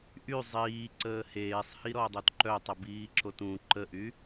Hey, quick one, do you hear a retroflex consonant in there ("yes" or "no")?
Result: no